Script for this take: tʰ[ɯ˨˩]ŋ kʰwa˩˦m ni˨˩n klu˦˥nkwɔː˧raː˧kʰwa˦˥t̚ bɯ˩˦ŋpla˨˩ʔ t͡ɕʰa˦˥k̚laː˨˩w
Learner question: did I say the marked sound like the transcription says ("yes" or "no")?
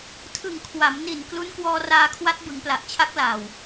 yes